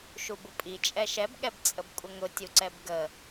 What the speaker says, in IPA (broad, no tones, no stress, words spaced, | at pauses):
ʃubʊpʼi t͡ʃʼɛʃɛb ɠɛbt͡sʼəbkʷʼəŋʊ tʲuǀɛbɡə